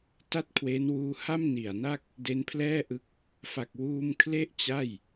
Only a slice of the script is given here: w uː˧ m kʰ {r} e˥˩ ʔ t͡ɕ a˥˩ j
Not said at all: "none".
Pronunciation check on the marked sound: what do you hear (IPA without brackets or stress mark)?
l